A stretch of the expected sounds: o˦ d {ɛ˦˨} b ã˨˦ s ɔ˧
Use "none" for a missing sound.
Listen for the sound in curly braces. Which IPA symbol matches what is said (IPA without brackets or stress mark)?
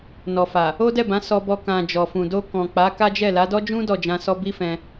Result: ɛ˦˨